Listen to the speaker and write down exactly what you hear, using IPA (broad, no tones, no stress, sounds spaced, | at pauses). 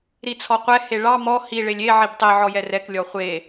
ɾ i t͡sʰ ɔ qʷ ɛ h e ɭ ɑ m ɔ h i ɭ e lʲ e ʕ i b tˤ i ʕ ɔ j ɛ r ɛ k lʲ ɔ χʷ e